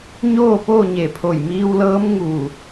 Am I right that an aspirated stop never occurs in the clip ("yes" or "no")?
no